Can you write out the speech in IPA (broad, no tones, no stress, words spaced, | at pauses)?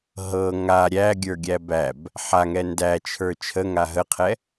ɦɤ ŋa ɾʲæɡʲə˞ɡʲæ bæb | ħaŋɛ ndæt͡ʃʰə˞ t͡ʃʰəŋa ɦəqʰɛ